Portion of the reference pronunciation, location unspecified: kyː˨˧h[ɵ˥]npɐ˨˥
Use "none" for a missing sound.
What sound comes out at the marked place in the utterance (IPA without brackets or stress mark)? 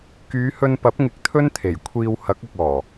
ɵ˧